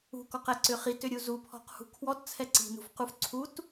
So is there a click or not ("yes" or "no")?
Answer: yes